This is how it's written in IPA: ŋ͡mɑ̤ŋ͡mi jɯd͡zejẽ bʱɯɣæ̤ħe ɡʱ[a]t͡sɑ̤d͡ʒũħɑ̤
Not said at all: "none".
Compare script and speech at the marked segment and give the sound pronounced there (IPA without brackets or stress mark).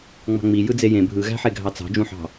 ɑ